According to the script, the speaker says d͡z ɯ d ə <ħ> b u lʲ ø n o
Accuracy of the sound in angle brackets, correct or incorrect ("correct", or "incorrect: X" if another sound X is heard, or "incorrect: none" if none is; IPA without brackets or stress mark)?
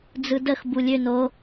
incorrect: x